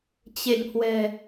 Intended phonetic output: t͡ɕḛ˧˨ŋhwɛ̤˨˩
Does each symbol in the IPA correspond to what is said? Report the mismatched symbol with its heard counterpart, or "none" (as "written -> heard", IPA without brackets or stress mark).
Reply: none